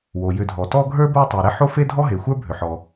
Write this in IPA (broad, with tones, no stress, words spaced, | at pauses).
wo˩jʏ˨dʱɔ˩ tɔ˦ɡʱə˞˥bə˞˦ tˤe˩ɾe˦ħo˥ fe˥dʱɔ˥ɦe˩ xʷə˞˥bʱʏ˩ħɔ˩